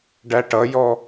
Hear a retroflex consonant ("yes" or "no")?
yes